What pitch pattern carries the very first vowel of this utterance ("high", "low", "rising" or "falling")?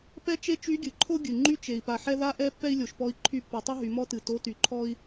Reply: high